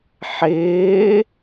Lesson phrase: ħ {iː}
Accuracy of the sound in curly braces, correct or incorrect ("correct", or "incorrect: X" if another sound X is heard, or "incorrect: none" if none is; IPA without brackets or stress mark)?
incorrect: ɪː